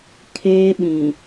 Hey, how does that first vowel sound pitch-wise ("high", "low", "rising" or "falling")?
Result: high